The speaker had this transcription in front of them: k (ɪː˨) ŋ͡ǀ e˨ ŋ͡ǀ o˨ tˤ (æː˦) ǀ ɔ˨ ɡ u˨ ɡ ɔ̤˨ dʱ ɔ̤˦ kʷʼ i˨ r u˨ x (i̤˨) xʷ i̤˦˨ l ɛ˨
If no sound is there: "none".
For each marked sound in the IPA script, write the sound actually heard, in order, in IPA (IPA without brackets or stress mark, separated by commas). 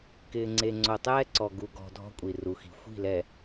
ɪː˨, ɛː˦, i̤˨